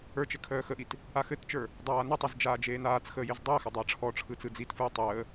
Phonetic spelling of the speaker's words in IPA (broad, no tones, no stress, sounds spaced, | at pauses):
ə˞ t͡ʃ ɘ kʰ œː x ə ʔ i t | a x ɘ t t͡ʃ ə˞ | dˤ aː n ɘ tˤ ə z d͡ʒ aː d͡ʒ eː n aː t͡s x əː j e z dˤ əː x ə dˤ əː ʈ͡ʂʰ ɔ ʈ͡ʂʰ ɯ t͡s ɯ d͡z i t f ɯ j tˤ əː